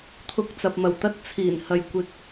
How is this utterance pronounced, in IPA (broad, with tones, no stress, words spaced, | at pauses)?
t̪ʰʊ˨˥k̚t͡sɐ˨p̚mɐ˨˩wt̪ɐ˧t̚ t͡sʰiː˨˩nhɐ˨j kʷɪ˧k̚